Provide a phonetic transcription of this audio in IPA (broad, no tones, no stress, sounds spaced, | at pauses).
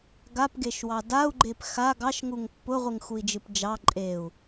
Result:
ɡ a p ɡ e ʃ w ɑ d a u̯ ɡ͡ǃ e p x a ɡ ɑ ʃ ŋ u ŋ pː ʊ ʁʷ ɨ ŋ x u i̯ d͡ʒ ɨ p d͡ʒ ɑ ǃʼ e u̯